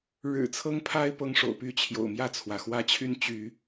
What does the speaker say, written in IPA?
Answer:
ɻɻ̩˨˩t͡sʰɤ˦ŋpʰa˦ɪ̯ pɤ˦ŋʂo̰˨˩ʊ̯ py˥˨t͡ɕʰjo̰˨˩ʊ̯mjä˥˨t͡sʰwä˩ xwä˦t͡ɕʰy˦n t͡ɕy˨˦

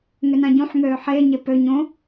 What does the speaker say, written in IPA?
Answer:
ŋʏnãɟũħŋøː ħe ɲepø ɲõ

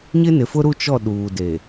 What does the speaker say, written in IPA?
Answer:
ɲɪ˦nɪ˨fʊ˦ɾu˦ t͡ʃɔ˦˨ ɗuː˨de˨

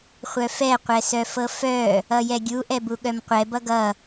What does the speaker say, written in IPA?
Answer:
χʷœfɛ qʷɛsœfɤfœ | ʌjɛɡʲu ʔɛbuɠœmqʷɛ bʌɡʌ

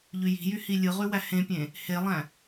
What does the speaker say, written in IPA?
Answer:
ʎyji̤jy hilʲɯʁy wæhẽpʲẽ | helˠæ̃

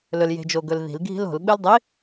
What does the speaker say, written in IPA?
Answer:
lɵlje̤d͡ʒoɡɵl ði̤lɡʱi̤l o̤lɓɨl dˤi

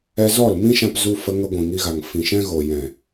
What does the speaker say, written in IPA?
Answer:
ɛ˧zɔ˦˨lmĩ˦ʃã˧p zu˧fə˧ŋə˧ ɡʷĩ˨ŋi˧ɣa˨ŋ fĩ˨ʃɛ̃˧ɣo˨ jɛ̃˨

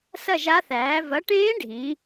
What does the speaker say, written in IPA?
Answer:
sɐ˥˩ʒa˧˥θæː˩˥ vɐ˩˥ʈẽː˧˥ ɖʱĩ˩˥

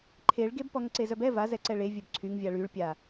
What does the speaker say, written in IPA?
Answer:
ǃʰeɭɡeb pɔŋǀezœbɛ vazɛǀɛ ɭevʲœb ǀʰyŋ vʲaɭyɭpʲa

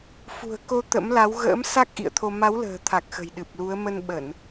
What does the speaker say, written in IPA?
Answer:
fṳ˨˩ə̯ko˨˦ t̪ə̰˧˥m la˨˦wɣə̰ː˧˥m sa˦˥k̚ʔḭ˧˨ə̯t̪ʰo˧ ma˨˦wlə̤ː˨˩t̪ʰa˨˩k̚ xə̤˨˩jɗɨ˨˩p̚lu˨˦ə̯ mə˧nɓə˧˩˨n

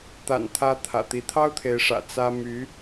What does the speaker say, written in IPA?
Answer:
t̪a̰˨˩nt̪ʰä˧˥ t̪ʰä̰˨˩t̪i˧˥ t̪ʰɑ˥ʊ̯t̪ʰe˧˥ɪ̯ʂä̰˨˩ t͡sä˥my˧˥

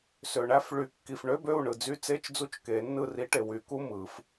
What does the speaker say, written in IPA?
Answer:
sø˨ɳæ˧˥˧f ɭy˨˩˦ kːi˨f ɳø˧˥˧bø˦˨u̯ ɳɯ˨d͡zy˧˥˧t͡se˧˥˧t͡ʃd͡zu˧˥˧t͡ʃ ke˨˩˦nːɯ˦˨ ri˧˥ʈe˨ wy˨˩˦ku˧˥˧mɯ˨˩˦f

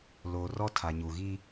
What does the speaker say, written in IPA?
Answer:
loː˨rɔ˦ tʰa˨ɲuː˨ɣi˦

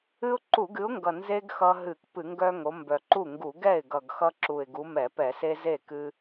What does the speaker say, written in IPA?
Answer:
ɨ˦ʊ̯ǃu˧˩˧ɡɨ˨˦ʊ̯ŋɡʌ˨˩ nze˦ɡ xʌ˦ɦɨ˧˩˧kpɨ˧˩˧ŋɡœ˦ ŋo˨˦mbœ˨˩ǃu˥˩ ŋɡu˧˩˧ɡɛ˥˩ɪ̯ɡʌ˨˩ɡ xʌ˦ǁu˨˩ɪ̯ ɡu˨˦mɛ˧˩˧pɛ˧˩˧ se˦ ze˥˩ kɨ˦

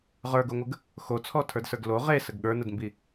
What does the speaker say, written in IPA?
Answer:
ʁə˞ɡoŋʷəɡ | xot͡sʰɔtʰə˞dsə˞ɡ lo ʁesəɡ ɠə˞nədmbi

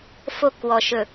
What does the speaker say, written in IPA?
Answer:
fo˦˨kwɔ˨ʃɵ˨

